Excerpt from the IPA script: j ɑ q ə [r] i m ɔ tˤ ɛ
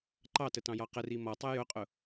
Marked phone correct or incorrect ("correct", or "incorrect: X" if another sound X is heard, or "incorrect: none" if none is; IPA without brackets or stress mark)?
correct